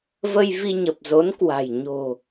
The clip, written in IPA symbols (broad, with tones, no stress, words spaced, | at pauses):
və˧jvi˧ɲə˨˩p̚zo˨˦n kwa̤˨˩j ɲo̤˨˩